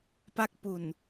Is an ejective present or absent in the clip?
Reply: absent